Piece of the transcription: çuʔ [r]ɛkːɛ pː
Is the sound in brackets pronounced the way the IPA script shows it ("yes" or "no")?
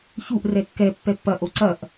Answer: yes